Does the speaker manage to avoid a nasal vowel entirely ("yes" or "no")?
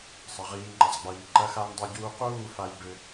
yes